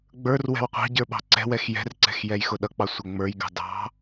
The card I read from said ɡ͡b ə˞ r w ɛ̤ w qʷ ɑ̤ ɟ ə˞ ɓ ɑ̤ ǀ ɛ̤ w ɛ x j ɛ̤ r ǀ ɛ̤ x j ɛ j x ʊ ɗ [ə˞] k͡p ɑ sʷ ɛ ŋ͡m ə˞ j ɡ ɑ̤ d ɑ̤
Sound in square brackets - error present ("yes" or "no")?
yes